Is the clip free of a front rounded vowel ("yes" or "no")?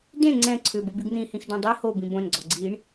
no